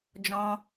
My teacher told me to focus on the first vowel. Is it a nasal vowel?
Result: yes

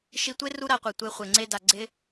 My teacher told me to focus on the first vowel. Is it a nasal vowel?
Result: no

